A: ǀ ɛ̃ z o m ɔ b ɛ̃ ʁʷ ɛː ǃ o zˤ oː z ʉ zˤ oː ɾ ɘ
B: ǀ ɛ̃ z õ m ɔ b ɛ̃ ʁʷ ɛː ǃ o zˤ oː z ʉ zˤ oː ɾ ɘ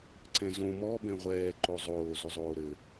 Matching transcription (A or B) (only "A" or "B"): B